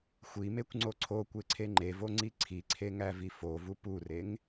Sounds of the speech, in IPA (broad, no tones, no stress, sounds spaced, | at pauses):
xʷ i m e kʷ ŋ͡ǀ o ǀʰ o kʷ e ǀʰ e ŋ͡ǃ e v o ŋ͡ǀ i ǀʰ i ǀʰ e ŋ æ v i f o v u p u r e ŋ